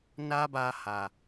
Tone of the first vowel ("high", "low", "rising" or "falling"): high